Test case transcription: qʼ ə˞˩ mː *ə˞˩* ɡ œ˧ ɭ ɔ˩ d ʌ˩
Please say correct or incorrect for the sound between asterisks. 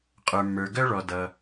correct